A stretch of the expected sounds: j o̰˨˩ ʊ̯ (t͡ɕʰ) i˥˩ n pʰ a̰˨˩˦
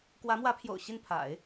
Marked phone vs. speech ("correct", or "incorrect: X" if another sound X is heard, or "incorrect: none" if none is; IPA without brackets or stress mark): incorrect: ɕ